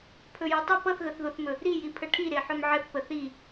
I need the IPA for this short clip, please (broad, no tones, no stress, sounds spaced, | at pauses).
pʰ ɵ j o tˤ ʊ p ʌ θ ɣ ə θ ð o θ m ɵ | ɾ i j i pʰ ə ʈʰ i ɾ e ħ ɵ m ʕ ə θ p ə θ i